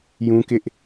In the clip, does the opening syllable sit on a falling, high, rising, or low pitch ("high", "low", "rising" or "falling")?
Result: high